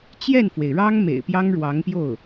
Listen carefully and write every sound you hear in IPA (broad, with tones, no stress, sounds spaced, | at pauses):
t͡ɕ j ɛ˥˩ n f w e˩ ɪ̯ ɻ ɑ˥ ŋ m ḛ˨˩ ɪ̯ p j ɑ˥ ŋ ɻ w ɑ˧˥ ŋ p j o˥˩ ʊ̯